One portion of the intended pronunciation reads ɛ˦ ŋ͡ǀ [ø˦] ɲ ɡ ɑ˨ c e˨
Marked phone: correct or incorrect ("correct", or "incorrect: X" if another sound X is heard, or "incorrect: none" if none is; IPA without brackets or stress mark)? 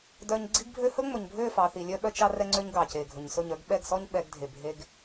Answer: correct